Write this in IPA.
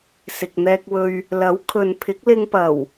sɪ˨k̚n̪ɛː˧k̚wɵ˧ɥ | lɐ˨˥wkʰɵ˨npʰɪ˨˥k̚lɪ˧ŋ pɐ˨˩w

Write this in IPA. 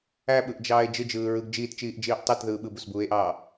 æɓɯʔd͡ʒɑːe̯ d͡ʒɯd͡ʒɯːɹɯɡ d͡ʒiːtt͡ʃiːʔd͡ʒiːʔ tˤɯtðɯː ɓɯbusbuːe̯ʔɑː

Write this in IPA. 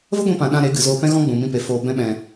və˦ɡʷĩ˧pã˨ ɗã˧ɾe˨˦ ɡɨ˨zoː˧pɛ̃˦ ɣɔ̃˦ɡ͡bũ˨ mĩ˧pe˨ foː˨ bɛ̃˦ɓɛ̃˧

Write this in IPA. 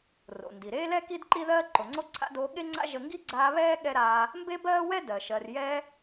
ro̰˩ndi˩ɾeː˥lɛ˥ ki˥dǃi˥ðɜː˥ ǃo˨ŋ͡ǀo˥ǀʰa̰˥doː˦ ɠe˥ŋ͡ǀa̰˥ ʒə˦ ŋɡi˥ɡ͡ǀaː˦βɛː˥ ɠɛ˥ɾaː˦ | mbe˥bɜː˥wɛ˥ dɜ˩ʃɜ˨rjɛː˦

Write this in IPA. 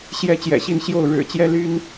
ɕjɛ˨˦ t͡ɕjɛ̰˨˩ɕi˥˨nɕjo˥˨ʊ̯ ɻɻ̩˨˩ t͡ɕjɛ˦ly˦n

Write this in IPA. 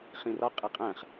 χĩrɒqʼɘ qʼæ̃χ

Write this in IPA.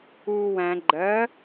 uːwæ̃ ɡ͡ǃɜ

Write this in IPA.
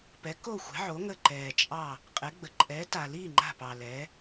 pɛ˨˥ko˥˨xʷɛ̤˨˥ʕo˨˥ ŋə˥˨ ǃɛː˨t͡ʃʼɑ˥˨ | qʼɛ˨˥ɡ͡bə˨ ǃʼɛː˨˥ta˨liː˥˨ ŋ͡ǃa̤˥˨pɑ˨ lɛː˨˥

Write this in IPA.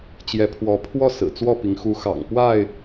t͡ɕjɛ˨˦pʰwɔ˨˦pʰwɔ˥˨ sɹ̩˨˩t͡swɔ˥˨pi˨˦ŋ xu˨˦xɑ̰˨˩ŋ pwa˥˨ɪ̯

